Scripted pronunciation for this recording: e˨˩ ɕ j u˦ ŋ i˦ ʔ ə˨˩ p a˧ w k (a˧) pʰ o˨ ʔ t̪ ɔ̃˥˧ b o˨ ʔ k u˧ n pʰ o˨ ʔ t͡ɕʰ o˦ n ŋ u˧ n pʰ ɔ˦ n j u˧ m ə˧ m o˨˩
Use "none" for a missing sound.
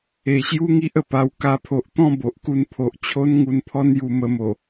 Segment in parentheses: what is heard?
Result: a˧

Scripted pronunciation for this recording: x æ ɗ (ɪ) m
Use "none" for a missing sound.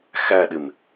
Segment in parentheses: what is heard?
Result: ɪ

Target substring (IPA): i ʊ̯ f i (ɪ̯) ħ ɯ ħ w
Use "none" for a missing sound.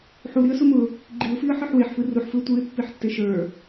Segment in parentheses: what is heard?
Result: ə̯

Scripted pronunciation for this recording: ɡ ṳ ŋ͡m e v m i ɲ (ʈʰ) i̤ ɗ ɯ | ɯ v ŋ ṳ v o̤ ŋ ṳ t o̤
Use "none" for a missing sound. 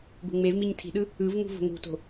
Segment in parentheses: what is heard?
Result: tʰ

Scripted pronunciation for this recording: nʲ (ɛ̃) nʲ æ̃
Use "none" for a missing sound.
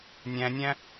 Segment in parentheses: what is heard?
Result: æ̃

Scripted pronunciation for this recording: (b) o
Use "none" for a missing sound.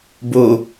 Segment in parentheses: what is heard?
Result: b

